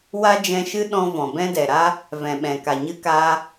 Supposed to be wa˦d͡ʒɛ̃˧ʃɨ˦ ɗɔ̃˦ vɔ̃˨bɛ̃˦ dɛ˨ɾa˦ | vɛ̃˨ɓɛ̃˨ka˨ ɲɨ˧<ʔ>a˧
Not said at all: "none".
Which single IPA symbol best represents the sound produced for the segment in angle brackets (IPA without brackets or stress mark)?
k